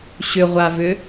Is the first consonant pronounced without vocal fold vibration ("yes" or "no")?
yes